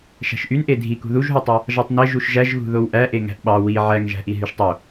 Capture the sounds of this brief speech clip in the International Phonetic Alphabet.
ʃ æ̤ ʃ ʔ y n ʔ e dʱ i k ṳ ð u ʒ ɦ u tˤ ɑ | ʒ ɑ tˤ n e ʒ u ʃ ʒ æ ʒ ɣ ṳ ð o w ʔ æ ʔ e ŋ æ̤ ʔ ɓ ɑ w i ʕ æ ŋ ʒ æ̤ ʔ i ɦ y ʃ tˤ o

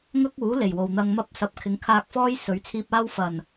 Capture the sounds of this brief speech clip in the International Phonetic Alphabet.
ŋ ɐ˥ k̚ uː˨˥ l e˨˩ j w o˨ w n̪ ɐ˧ ŋ m ɐ˥ p̚ s ɐ˨˥ p̚ kʰ ɪ˨˥ ŋ kʰ aː˧ k̚ f ɔː˥ j s ɵ˨˥ ɥ t͡sʰ iː˧ p̚ aː˥ w f ɐ˨˩ n

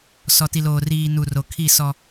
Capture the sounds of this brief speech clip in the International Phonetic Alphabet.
s ɔ˨ t i˨ l oː˨ r iː˨ n u˨ r o˨ kʰ i˦˨ s ɔ˦

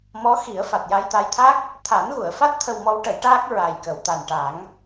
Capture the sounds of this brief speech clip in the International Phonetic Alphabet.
m ɔ˧˥ x i˨˩˦ ə̯ f a˨˩ t̚ j a˧ j t̪ a˧ j t̪ʰ a˦˥ k̚ | t̪ʰ a˨˩˦ n ɣ u˨˩˨ ə̯ f a˦˥ t̚ t̪ʰ ə˧ w m ɔ˧˥ w ʈ ə˨˩˦ j ʈ aː˦˥ k̚ ɹ a˨˩ j k ə˨˩˨ w t̪ a˨˩ n ʈ a˨˩˦ ŋ

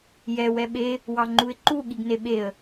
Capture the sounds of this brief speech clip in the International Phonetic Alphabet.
j ɛ w ɛ ɓ e | w ɑ ŋ͡ǃ u ɪ̯ ǃ u ɠ i ɡ n e ɓ e ə̯

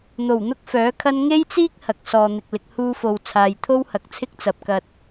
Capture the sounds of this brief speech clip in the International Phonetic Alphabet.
n̪ o˨˩ w n̪ ʊ˥ k̚ f œː˨˥ kʰ ɐ˥ n ŋ e˥ j t͡s iː˥ k̚ h ɐ˨ k̚ s ɔː˧ n̪ ɪ˧ k̚ l ɪ˧ k̚ h uː˧ f o˨ w t͡sʰ aː˨ j t̪ʰ o˥ w h ɐ˨ k̚ t͡sʰ ɪ˥ k̚ t͡s ɐ˨ p̚ k ɐ˧ t̚

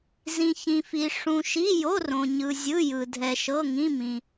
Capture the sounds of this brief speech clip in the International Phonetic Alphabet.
z ĩ˨ ç ĩ˨ f i˨ ʂ ũ˨ ʃ i˧˥˧ j o˧˥˧ r õ˨ ɲ ɯ˨ zʲ ɯ˧˥˧ j ɯ˨ dʱ ɛ˨ ʃ ɤ˧˥˧ ŋ ĩ˧˥˧ m ĩ˨

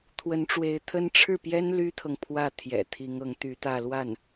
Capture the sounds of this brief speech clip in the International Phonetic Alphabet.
t̪ʰ w ə˧˥ n ʈ͡ʂ w e˧˥ ɪ̯ t̪ʰ ə˥ n ʈ͡ʂʰ ɻ̩˥˩ p j ɛ˥ n l y˥ t̪ʰ ɤ˨ ŋ pʰ w ä˥˩ t̪ʰ j ɛ̰˨˩ t̪ʰ i˧˥ ŋ ɤ˧˥ ŋ t̪ y˧˥ t̪ ä˥˧ l w a˥˩ n

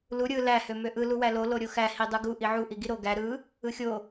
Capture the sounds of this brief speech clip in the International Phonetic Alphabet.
l u ɾʲ ɯ l æ h ø m ø ʔ ɯ l u w æ l o l o ɾʲ o x æ h i dˤ ɯ ɡ u ʔ i ʕ u ʔ i ɡ i ɾ o ɡ æ ɾ ɯ | ɯ xʲ o

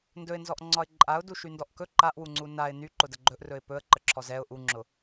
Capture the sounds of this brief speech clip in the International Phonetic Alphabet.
n d ɵ ɪ̯ n z ɔ ʔ ŋ͡ǀ ɒ ɪ̯ ǃʼ a ʊ̯ d u ʃ y n d ɔ ʔ k ɵ ǃ a ʔ w u ŋ͡ǀ u n a ɪ̯ n y ǃ ʊ d ə ɡ͡ǃ ɵ ʔ r ɵ ɪ̯ p ɵ ə̯ ǃ ə ǁʰ ɔ z ɛ ʊ̯ ʔ u ŋ͡ǁ ʊ

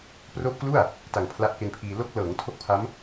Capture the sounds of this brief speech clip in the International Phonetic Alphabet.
p r oː˦˥ p̚ k l u˥˩ a̯ | t a˨˩ ŋ pʰ l a˦˥ ʔ k e˧ n pʰ iː˧ l o˦˥ k̚ l ɤː˩˦ ŋ tʰ o˥˩ k̚ pʰ a˦˥ m

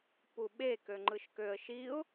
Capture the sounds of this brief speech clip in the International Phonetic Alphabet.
p u ɓ e k ø ŋ͡ǃ ɯ ʃ k ø ə̯ ʃ i ʊ̯

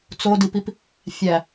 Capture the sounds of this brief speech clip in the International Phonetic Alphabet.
t͡s o d i p i p | fʲ æ

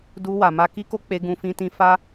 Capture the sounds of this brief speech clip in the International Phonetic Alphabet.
d u˧ w a˨ m a˧ k i˦ k o˦ k͡p e˦ ɡ ũ˦ f ĩ˦ t ĩ˦ f a˦

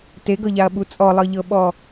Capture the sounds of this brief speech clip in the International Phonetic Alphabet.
t e ɡ ɤ ʎ a ɐ̯ ɓ u t͡sʼ ɔ lˠ ɤ ʎ ɤ ɓ ɔ

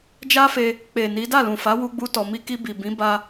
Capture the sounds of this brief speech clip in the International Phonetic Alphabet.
d͡ʒ a˦ f e˧ | k͡p e˨ n i˨˦ d a˦˨ l ũ˨ f a˨˦ w u˦ ɡ͡b u˦ t ɔ˧ m i˧ k i˧ b i˨ b ĩ˨˦ b a˧

